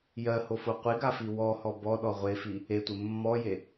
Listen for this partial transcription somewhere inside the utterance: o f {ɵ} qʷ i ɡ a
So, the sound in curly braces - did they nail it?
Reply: no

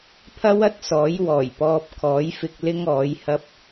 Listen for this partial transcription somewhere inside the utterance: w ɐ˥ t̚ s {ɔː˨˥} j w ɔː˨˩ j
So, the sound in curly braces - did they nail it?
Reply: yes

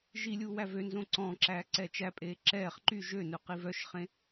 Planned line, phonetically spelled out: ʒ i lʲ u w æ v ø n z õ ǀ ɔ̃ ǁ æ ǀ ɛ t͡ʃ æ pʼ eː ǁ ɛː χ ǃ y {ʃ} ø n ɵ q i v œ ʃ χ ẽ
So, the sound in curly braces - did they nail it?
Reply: no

